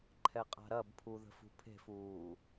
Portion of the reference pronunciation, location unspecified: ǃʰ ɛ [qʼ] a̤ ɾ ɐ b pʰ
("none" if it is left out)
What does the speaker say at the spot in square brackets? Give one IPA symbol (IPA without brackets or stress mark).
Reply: qʼ